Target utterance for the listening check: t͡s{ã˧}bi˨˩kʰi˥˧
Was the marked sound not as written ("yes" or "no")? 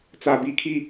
yes